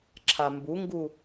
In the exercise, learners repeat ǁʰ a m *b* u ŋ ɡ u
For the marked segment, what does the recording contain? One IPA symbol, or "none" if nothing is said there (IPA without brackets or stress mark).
b